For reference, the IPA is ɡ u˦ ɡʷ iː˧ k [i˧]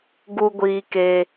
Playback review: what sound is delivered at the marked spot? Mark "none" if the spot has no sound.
e˧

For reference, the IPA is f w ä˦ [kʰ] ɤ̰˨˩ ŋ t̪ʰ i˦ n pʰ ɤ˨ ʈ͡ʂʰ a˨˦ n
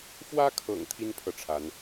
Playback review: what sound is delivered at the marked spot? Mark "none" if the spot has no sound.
kʰ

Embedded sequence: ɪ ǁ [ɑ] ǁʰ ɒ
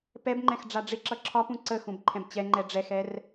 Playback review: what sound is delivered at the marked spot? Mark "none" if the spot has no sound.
ʌ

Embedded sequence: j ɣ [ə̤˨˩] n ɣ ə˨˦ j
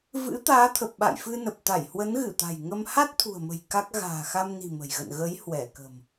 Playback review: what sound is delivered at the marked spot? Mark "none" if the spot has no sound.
ə̰˧˨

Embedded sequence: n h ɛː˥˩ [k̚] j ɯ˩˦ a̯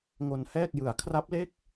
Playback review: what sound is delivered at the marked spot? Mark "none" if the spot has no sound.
k̚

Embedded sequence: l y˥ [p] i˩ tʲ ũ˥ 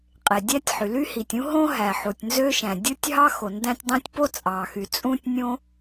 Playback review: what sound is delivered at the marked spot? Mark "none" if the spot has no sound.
h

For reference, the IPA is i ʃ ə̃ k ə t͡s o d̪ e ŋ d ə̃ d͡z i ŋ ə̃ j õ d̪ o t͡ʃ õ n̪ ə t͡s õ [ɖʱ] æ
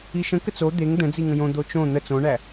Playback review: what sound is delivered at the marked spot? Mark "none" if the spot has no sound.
ɳ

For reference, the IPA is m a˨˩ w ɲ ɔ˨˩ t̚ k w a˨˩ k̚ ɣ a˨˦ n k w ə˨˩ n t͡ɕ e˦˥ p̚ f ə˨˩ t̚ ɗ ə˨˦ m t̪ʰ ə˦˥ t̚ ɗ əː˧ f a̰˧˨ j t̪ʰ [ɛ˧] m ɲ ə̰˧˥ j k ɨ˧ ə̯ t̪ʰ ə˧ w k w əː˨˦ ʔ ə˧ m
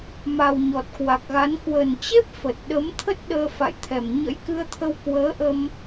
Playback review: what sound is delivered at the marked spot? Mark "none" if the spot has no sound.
ɛ˨˩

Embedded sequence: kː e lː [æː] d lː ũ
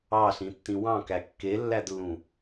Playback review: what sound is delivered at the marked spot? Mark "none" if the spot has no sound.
æ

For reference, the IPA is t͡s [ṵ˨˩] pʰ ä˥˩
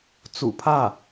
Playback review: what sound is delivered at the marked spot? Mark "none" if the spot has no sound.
ṵ˨˩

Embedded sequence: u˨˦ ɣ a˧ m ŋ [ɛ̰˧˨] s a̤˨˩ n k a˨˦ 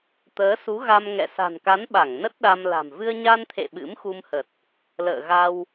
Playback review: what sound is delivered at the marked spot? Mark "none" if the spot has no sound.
ɛ̰˧˨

